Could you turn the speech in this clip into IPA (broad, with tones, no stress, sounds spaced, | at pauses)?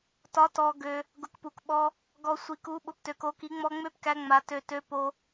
t ɒ˧˥ t ɔ˧ ɡ ø˧ | ɡ ʊ˧˥ k p u˧ k ɓ ɔ˧ | ɡ ɔ˧ sʷ i˧ k u˧˥ ɓ ʊ˧˥ p t ø˧ k o˧˥ k i˧˥ ŋ͡m ɔ˧ ŋ͡m ø˧˥ p k æ˧ ŋ͡m a˧ t ø˧ t ø˧˥ p o˧